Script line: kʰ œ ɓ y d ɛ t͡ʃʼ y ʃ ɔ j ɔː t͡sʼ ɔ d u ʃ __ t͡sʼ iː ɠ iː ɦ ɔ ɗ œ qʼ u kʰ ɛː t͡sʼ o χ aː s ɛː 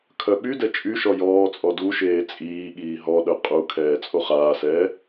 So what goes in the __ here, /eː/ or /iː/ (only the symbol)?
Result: eː